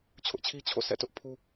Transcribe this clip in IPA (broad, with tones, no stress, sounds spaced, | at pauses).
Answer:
t͡ɕʰ ʊ˦ ʔ t͡ɕʰ i˦ t͡ɕʰ o̰˦˨ sʰ ɛ̰˦˨ t ʊ˦ ʔ pʰ u˦